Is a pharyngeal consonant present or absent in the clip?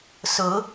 absent